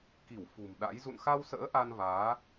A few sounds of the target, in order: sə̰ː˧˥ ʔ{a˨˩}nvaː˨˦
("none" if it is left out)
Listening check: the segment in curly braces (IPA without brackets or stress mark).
a˧